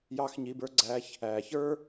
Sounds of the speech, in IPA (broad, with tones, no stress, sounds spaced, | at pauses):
j ɑ˥ x ɲ i˧˥˧ b ə˞˥ ɡ͡ǀ æ˧˥˧ ç | æ˨˩˦ ç ə˞˥